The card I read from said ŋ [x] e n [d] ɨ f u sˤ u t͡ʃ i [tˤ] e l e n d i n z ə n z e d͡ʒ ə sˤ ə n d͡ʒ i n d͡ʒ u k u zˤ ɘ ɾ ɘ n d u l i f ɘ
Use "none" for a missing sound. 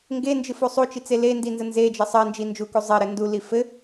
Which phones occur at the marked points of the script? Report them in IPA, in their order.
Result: ɡ, d͡ʒ, t͡s

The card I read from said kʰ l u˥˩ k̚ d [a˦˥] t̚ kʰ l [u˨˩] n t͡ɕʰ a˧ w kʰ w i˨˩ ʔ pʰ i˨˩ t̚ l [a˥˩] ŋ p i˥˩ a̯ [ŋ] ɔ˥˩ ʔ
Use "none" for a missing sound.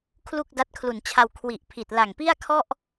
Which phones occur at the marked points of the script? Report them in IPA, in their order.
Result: a˦˥, u˨˩, a˨˩, kʰ

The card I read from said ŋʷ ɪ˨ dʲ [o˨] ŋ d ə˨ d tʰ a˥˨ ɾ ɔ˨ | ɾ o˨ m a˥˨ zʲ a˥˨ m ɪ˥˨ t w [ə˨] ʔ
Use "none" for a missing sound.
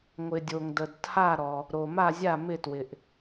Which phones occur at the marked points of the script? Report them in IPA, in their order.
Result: o˨, ɪ˨

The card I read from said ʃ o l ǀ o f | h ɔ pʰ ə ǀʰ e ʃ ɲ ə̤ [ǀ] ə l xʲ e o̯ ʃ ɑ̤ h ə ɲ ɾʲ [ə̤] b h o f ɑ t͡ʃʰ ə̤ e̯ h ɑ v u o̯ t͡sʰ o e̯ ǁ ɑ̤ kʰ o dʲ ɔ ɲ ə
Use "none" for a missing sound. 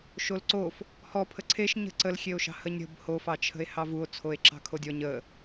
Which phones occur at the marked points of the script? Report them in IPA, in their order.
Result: ǀ, ə̤

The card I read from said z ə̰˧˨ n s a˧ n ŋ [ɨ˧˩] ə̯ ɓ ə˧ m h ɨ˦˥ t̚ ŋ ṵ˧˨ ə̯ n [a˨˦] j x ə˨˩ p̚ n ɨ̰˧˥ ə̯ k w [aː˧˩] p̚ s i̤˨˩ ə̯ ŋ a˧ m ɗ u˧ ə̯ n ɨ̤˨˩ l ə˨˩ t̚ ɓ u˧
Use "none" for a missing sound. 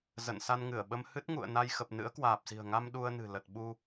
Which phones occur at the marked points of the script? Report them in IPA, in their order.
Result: ɨ˧˩, a˧, aː˨˩

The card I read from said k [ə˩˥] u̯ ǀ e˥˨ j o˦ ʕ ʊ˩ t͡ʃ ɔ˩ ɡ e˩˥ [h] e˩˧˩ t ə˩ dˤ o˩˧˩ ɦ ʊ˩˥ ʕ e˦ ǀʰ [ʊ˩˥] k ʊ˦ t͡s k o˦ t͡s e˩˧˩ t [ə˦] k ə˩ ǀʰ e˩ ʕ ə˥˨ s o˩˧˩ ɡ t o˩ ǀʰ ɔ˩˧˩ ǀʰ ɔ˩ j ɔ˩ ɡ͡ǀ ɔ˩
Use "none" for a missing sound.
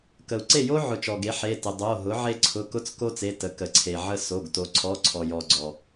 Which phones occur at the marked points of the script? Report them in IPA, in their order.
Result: ə˩, ħ, ʊ˩˧˩, ə˩˥

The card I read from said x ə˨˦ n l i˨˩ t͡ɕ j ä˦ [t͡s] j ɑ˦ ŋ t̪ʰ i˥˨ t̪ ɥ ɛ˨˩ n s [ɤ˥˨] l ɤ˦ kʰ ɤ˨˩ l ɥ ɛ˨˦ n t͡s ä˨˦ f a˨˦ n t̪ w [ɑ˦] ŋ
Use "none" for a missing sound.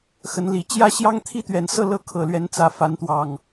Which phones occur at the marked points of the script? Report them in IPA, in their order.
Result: ɕ, ɤ˥˨, ɑ˨˩

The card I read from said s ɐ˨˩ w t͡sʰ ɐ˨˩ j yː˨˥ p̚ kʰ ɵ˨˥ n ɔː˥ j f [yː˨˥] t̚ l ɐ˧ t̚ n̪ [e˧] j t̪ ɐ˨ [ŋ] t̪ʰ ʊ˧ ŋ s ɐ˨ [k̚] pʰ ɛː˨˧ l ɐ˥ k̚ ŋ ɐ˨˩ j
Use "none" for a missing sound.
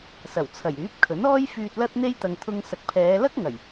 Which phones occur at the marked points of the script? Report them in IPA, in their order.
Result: yː˨, e˧, ŋ, k̚

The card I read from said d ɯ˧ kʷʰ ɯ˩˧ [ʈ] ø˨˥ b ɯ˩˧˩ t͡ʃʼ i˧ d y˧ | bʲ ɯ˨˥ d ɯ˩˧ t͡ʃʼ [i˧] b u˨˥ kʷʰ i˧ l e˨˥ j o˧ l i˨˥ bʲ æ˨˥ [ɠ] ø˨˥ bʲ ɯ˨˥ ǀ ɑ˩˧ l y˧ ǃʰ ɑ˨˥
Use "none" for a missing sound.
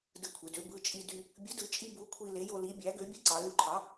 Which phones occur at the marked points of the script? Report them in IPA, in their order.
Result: d, i˧, ɡ

